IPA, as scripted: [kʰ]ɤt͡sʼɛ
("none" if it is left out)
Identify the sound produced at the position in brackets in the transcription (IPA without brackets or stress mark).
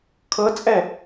kʰ